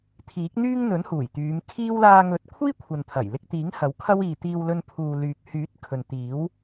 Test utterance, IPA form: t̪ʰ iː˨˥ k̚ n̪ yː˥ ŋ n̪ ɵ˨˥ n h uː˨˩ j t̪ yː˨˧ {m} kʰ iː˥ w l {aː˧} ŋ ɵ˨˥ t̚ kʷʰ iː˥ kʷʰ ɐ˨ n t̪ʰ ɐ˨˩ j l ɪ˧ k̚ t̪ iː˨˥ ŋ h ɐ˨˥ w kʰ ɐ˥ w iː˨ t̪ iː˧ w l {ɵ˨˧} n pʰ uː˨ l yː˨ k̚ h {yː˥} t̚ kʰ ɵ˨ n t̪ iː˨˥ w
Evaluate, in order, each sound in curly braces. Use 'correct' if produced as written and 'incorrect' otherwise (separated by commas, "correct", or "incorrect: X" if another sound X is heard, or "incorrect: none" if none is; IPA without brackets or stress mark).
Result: correct, correct, incorrect: ɵ˧, incorrect: yː˨˥